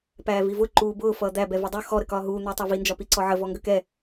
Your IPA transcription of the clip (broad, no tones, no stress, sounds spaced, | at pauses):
p æː v i v ʊ ǃ uː b ʊː f ʌː d̪ æ b ɛ v ʌ dˤ u x ɔ ɾ ə k ɒː ɦ uː n̪ ʌː tˤ ɑ v i n d͡ʒ ɒ p i ǀ ɔ ʕ ə v ɔ ŋ ɡ ə k ɛ